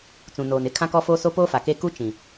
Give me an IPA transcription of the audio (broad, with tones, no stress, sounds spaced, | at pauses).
t͡s ũ˨ n oː˨ n ɪ˦ kʰ ã˦ k ɔ˦ f oː˦ s o˦ p oː˦ f a˨ k e˦ k u˦ t͡ʃ ĩ˨